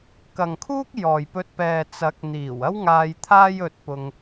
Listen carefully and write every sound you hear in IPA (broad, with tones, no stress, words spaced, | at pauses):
kɐ˨ŋkʰuː˥k̚jɔː˨jpɵ˧t̚ pɛː˨t͡sɐ˨˥k̚n̪iː˨˩w ɐ˥wŋaː˧j t̪ʰaː˥jɵ˧t̚pʊ˧ŋ